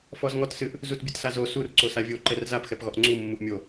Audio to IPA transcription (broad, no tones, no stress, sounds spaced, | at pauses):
f ɔ z ŋ ɔ t s ɨ ʔ | z u t bʲ ɨ t s a z o s u r ǀ o s a vʲ o ǃ ɛ r z a p x ɛ p ɣ ɔ ʔ ŋ͡ǀ u mː u ʔ mʲ o